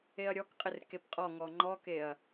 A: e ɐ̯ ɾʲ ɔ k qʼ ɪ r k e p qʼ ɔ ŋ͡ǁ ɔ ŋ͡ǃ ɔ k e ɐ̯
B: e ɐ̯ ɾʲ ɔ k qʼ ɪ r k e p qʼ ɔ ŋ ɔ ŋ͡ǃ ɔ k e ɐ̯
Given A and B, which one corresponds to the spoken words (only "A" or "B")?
B